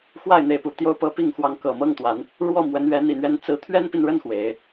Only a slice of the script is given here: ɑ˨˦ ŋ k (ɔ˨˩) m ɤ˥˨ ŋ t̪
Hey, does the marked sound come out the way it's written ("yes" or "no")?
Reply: no